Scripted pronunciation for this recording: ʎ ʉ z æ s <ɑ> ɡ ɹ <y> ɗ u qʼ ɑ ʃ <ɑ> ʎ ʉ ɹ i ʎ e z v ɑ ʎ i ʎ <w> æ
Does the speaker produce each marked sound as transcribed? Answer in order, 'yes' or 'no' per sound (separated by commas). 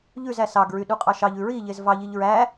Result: yes, yes, yes, no